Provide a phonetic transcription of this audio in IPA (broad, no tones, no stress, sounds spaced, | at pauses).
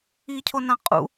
i cʰ o n ã qʼ ṵ